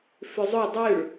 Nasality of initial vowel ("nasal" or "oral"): oral